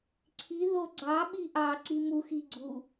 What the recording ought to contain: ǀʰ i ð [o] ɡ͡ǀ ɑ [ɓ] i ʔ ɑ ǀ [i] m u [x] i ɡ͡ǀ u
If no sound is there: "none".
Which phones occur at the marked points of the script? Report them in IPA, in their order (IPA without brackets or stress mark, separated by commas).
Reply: o, ɓ, i, x